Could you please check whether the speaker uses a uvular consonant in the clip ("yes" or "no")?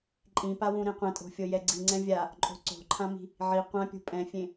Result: yes